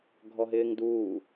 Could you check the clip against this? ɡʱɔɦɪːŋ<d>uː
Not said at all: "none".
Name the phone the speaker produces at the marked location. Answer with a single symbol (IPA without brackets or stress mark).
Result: d